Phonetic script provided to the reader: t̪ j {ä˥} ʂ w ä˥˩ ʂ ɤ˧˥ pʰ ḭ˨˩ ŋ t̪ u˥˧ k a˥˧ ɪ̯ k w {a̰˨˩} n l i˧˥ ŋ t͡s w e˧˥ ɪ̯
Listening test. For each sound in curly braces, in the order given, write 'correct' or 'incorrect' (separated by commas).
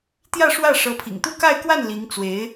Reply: incorrect, incorrect